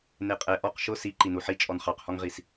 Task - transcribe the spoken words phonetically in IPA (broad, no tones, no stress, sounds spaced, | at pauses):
n e qʼ ɛ ʔ ɔ q ʃ ʊ s i ǃ i n u ħ i t͡ʃʼ ɔ n χ ɑ q h ɔ ŋ ʁ i s